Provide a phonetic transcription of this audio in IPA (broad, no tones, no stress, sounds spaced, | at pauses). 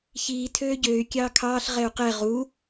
ç iː tʰ øː ɟ øː y̯ kʲ ɑː kʰ ɑː ɬ ʁ ɛ u̯ q ɛ ʁ u